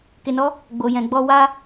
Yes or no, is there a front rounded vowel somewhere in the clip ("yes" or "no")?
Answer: no